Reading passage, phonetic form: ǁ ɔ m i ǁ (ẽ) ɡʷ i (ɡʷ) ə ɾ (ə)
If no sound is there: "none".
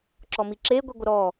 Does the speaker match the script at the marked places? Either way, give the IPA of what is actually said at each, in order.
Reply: e, ɡʷ, ɔ

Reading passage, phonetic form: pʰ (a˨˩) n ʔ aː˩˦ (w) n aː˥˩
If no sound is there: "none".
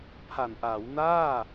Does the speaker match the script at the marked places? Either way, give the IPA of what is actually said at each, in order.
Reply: a˨˩, w

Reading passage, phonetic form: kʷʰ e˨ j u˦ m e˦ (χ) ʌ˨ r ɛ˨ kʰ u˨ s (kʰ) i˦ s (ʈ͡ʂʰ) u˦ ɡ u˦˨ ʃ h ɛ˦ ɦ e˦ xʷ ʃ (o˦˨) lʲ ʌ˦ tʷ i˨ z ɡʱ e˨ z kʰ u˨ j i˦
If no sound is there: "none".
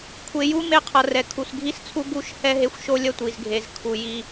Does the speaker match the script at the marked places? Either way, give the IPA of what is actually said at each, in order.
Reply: qʰ, ɡʱ, t͡sʰ, o˦

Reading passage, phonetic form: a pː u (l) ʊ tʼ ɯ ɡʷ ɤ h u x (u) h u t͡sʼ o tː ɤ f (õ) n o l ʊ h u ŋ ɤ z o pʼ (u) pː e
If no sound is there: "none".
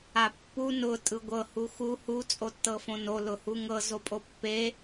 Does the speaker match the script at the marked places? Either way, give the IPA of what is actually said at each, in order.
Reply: n, u, õ, o

